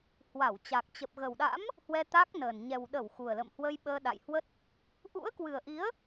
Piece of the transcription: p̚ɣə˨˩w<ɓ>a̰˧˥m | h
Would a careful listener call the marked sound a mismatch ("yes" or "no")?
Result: yes